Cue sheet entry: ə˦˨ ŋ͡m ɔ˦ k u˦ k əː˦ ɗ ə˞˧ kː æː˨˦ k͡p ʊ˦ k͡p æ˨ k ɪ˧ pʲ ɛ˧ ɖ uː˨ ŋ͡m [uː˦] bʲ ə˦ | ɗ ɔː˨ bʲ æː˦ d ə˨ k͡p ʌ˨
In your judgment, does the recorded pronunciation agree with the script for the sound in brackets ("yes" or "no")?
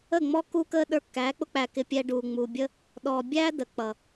no